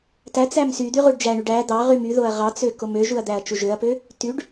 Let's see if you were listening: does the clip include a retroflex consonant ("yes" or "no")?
yes